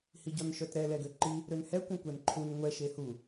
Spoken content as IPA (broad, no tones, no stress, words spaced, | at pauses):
hiɟɔnʃœtɾɛ lɛɡøǃi | ɾønhɛkʷ õkʷɛnǃʰun ŋʷɛ ʃehu